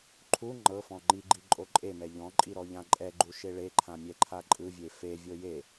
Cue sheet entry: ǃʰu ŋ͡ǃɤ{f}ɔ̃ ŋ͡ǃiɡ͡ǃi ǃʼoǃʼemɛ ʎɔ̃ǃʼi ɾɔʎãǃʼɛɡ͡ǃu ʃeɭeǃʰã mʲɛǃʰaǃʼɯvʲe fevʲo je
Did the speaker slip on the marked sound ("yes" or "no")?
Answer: no